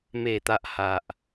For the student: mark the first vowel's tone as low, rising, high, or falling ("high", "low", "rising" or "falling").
low